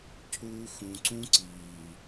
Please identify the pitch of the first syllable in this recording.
high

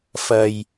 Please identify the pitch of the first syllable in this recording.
low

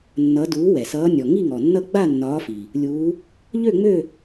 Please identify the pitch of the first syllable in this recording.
rising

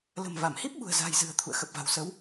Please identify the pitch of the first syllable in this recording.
low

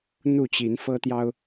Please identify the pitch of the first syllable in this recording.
falling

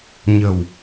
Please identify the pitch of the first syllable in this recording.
low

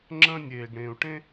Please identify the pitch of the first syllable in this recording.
high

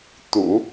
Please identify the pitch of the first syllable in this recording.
low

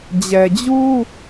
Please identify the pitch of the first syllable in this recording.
low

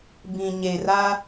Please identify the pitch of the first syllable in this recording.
low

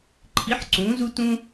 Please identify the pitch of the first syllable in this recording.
rising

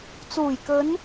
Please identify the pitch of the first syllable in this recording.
low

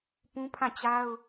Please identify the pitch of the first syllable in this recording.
high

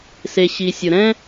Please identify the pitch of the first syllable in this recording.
low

